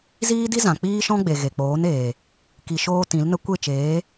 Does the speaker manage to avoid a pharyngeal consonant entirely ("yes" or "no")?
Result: yes